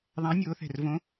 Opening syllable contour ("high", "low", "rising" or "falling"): rising